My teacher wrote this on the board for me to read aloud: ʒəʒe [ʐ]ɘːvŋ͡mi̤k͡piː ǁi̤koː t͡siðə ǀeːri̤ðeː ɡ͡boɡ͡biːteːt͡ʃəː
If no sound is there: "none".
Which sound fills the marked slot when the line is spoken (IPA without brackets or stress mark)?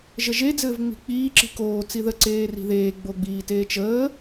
d͡z